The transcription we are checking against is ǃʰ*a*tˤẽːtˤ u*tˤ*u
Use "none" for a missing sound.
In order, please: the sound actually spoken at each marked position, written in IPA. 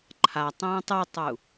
a, tˤ

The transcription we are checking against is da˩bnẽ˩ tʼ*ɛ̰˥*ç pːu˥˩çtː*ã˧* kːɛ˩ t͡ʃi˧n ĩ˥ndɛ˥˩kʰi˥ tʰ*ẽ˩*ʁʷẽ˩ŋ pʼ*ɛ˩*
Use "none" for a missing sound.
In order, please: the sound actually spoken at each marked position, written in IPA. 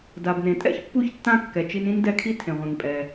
ɛ̰˥, ã˥˩, ẽ˩, ɛ˩

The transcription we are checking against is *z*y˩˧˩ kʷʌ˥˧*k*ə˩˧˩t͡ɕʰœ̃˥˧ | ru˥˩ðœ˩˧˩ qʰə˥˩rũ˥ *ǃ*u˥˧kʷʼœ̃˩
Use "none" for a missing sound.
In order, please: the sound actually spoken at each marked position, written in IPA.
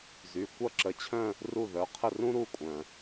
z, ǁ, ɾ

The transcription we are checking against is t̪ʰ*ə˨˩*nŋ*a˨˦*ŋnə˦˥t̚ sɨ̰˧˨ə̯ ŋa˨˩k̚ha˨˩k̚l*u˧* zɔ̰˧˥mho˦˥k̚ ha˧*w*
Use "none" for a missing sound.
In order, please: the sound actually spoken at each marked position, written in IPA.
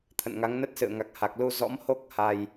ə̰˧˨, a˨˦, u˧, j

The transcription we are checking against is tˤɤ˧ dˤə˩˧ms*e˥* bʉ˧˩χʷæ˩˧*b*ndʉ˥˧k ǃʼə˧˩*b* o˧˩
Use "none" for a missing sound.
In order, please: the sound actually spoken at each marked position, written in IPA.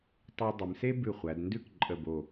e˥, d, b

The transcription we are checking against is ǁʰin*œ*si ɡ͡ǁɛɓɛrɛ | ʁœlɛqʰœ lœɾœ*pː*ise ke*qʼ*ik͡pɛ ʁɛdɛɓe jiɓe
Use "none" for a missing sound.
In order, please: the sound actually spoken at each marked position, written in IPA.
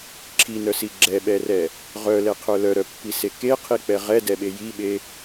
œ, pː, qʰ

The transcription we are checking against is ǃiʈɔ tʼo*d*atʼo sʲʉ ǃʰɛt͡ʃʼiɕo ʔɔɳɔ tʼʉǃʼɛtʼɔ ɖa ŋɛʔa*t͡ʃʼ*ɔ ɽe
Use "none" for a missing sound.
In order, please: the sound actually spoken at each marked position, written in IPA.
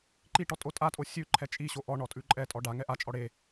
tʼ, t͡ʃʼ

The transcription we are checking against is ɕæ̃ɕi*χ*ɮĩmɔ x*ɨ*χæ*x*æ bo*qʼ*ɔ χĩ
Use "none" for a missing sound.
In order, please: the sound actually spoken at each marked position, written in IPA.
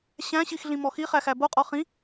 x, i, x, qʼ

